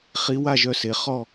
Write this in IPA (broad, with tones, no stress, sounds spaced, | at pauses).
χ i˧˥ w a˥˨ ʒ œ˥˨ s e˩˧ χ ɔ˥˨